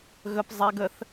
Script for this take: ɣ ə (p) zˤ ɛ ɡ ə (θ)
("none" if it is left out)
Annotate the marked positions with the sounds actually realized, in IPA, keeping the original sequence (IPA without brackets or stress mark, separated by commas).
p, θ